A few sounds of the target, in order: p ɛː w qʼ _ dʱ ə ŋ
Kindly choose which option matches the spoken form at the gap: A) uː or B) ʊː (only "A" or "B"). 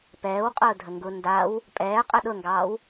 B